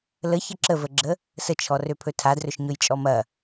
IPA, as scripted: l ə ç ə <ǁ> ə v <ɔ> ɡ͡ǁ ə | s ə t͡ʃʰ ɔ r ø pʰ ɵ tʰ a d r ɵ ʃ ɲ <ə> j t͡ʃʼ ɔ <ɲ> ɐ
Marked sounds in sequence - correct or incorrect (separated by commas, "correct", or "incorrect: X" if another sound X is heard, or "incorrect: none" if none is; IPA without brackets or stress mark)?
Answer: correct, incorrect: ə, incorrect: ɵ, incorrect: m